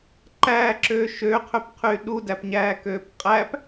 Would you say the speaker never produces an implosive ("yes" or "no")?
no